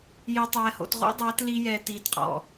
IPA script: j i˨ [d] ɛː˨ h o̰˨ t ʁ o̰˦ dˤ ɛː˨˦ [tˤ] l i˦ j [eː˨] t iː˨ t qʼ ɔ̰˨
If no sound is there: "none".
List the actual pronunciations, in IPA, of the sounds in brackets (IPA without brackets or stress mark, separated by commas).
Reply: tˤ, t, ɛː˨